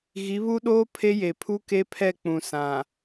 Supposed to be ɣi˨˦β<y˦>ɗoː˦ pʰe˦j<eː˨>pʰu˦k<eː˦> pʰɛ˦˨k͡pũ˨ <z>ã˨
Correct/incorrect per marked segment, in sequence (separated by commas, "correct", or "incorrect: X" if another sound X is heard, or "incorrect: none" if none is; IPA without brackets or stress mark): incorrect: u˦, incorrect: e˨, incorrect: e˦, incorrect: s